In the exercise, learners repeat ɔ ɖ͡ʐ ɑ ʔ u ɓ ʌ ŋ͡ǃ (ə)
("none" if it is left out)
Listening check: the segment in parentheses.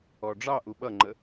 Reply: ə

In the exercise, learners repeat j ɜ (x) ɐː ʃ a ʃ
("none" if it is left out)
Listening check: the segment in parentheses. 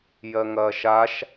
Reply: ŋ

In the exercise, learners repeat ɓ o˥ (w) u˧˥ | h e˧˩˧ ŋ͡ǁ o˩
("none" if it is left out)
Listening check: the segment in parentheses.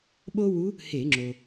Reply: w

